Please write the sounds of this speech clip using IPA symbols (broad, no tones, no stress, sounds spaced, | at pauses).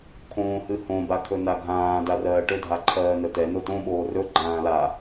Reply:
kʰ õː h ɨ h õ b a kʰ ɵ n a ɡʱ ãː d a r ɜː ʈ ɵ dʱ a ǃʰ ɜː n ə t ɛ n o t õ ɓ oː r ɵ ɡ͡ǃ ãː l a